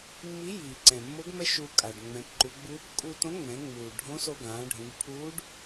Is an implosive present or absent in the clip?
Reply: absent